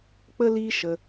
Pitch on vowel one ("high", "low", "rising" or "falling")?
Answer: high